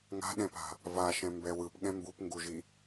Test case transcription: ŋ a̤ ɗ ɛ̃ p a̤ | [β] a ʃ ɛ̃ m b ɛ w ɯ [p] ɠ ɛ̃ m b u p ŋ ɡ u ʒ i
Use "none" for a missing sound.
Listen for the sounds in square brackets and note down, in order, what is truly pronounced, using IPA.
v, p

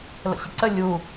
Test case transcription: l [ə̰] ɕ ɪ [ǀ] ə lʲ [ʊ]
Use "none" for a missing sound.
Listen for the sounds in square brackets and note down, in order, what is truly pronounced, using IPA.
ə̰, ǀ, u

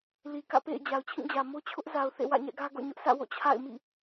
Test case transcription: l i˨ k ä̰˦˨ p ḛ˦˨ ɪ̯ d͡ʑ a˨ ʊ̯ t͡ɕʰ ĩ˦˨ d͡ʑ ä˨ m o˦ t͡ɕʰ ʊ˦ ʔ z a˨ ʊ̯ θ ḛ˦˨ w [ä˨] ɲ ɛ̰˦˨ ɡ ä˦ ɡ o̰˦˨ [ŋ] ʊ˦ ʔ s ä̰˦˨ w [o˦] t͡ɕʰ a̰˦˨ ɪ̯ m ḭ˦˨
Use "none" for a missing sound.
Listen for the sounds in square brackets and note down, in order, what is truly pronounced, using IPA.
ä̰˦˨, ɲ, o̰˦˨

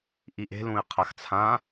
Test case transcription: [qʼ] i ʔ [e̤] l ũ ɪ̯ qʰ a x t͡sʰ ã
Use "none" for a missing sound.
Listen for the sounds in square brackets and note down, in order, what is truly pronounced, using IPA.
ʔ, e̤

